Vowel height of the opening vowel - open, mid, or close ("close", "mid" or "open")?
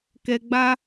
mid